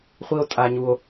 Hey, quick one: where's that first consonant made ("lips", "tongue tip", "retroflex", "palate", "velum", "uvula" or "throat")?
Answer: uvula